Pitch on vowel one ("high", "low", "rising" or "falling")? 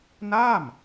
falling